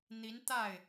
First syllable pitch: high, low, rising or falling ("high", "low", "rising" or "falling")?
rising